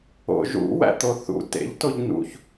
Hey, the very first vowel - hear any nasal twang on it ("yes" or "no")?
no